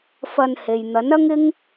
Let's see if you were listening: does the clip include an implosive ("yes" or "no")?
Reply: no